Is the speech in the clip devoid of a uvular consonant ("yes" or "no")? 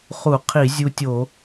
no